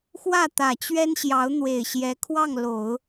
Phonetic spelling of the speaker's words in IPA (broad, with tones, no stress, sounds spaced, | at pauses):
x w ä˥˩ t̪ ä˨˩ t͡ɕ ɥ ɛ˥ n ɕ j ɑ˧˥ ʊ̯ n̪ w e˨˩ ɪ̯ ɕ j ɛ˧˥ kʰ w ɑ˥˩ ŋ l o˨˩˦ ʊ̯